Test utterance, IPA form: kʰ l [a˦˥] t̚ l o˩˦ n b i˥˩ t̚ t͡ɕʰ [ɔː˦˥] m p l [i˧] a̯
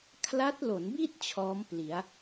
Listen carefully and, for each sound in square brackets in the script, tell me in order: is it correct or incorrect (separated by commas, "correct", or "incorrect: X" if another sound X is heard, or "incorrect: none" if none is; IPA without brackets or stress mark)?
correct, correct, incorrect: i˩˦